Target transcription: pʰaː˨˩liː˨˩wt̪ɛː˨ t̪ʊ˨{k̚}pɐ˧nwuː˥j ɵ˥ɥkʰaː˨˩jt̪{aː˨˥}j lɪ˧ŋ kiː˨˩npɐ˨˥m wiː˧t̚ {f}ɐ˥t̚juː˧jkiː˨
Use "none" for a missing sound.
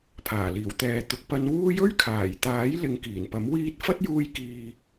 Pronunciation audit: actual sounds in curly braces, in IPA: k̚, aː˨˥, f

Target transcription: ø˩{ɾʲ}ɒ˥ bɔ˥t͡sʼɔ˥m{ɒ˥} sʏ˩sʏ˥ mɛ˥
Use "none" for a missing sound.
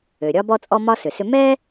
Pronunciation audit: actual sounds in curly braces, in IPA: ɾʲ, ɒ˥

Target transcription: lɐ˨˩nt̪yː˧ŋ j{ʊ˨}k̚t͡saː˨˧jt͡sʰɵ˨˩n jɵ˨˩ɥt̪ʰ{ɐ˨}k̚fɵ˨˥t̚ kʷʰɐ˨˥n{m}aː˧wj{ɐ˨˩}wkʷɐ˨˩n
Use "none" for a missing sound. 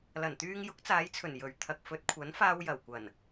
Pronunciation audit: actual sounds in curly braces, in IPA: ʊ˨˥, ɐ˨, f, ɐ˨˩

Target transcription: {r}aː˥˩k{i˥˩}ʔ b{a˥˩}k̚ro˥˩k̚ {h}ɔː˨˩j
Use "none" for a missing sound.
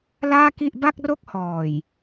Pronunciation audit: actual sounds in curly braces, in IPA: l, i˥˩, a˥˩, h

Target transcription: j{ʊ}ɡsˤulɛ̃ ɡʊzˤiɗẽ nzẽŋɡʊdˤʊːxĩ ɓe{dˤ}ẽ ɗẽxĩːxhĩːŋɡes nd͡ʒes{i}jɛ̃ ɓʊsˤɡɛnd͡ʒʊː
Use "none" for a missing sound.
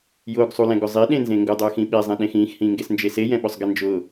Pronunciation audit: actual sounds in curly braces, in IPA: ʊː, zˤ, e

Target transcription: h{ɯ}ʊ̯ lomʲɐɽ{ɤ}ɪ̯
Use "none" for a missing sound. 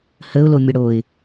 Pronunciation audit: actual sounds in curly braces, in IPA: ə, o

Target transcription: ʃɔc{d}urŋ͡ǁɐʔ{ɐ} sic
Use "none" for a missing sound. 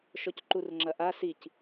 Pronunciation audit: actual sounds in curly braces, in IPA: ǃ, a

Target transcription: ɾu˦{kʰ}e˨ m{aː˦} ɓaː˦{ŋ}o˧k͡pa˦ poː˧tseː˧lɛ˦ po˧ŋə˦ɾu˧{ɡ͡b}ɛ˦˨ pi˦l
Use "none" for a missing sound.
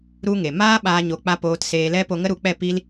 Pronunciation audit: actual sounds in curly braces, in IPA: ŋ, aː˦, ɲ, k͡p

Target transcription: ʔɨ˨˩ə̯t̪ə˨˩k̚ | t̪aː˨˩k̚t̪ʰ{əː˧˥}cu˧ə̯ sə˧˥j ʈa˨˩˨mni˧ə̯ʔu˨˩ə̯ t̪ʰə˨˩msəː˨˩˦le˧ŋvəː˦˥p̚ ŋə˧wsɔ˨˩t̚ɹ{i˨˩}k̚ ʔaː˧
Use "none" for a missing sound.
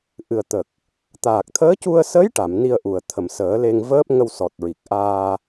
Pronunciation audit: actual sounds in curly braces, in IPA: əː˧˥, i˨˩

